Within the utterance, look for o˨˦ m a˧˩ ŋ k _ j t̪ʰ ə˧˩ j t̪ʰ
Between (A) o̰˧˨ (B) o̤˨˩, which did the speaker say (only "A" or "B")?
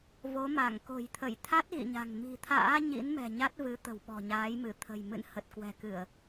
B